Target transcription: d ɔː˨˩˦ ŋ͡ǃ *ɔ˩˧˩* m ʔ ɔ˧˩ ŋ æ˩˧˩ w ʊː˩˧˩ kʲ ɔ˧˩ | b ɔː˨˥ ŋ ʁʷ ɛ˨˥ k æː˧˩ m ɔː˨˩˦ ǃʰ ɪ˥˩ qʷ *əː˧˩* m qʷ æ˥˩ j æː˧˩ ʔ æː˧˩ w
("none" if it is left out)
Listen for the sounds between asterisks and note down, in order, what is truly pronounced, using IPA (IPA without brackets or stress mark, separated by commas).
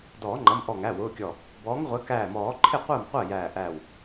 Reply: ʌ˩˧˩, əː˥˩